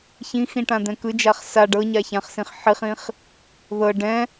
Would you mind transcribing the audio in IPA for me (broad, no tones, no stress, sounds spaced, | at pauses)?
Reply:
ç ĩ x ĩ ʈ ã d̪ ɛ̃ k ɯ d͡ʒ a χ s a ɖ ɤ ɲ a ç ã χ s ĩ χ ħ i χ ĩ χ | ð ɤ ɖ ɛ̃